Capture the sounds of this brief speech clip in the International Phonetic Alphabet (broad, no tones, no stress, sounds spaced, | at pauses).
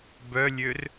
b œ lʲ ø r